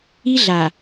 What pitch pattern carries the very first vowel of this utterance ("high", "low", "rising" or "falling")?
high